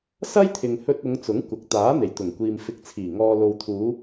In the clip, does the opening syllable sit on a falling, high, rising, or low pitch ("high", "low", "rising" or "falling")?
high